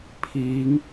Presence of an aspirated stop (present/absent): present